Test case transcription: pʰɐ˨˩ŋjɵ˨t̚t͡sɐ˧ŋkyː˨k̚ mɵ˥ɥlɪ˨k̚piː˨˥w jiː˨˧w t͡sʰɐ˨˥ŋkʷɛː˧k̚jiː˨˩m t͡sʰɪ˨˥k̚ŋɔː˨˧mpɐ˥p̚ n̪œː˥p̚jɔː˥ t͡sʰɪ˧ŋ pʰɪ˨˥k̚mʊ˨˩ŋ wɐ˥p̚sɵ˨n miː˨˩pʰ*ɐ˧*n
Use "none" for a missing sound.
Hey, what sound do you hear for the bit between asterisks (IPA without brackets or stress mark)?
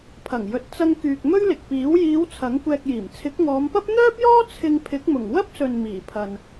ɐ˨